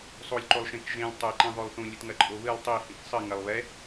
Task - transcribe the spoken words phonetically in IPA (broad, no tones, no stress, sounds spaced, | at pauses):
sˤ o lʲ ǃ o lˠ ʃ ẽ k ʒ ẽ lʲ tˤ ɛ ǃ ĩ ðˤ o lˠ θ ũ lʲ ɨ t ŋ ɐ ǃʼ o β ɨ lˠ tˤ i h ĩ k sˤ ɘ ŋ ɐ lˠ β ɛ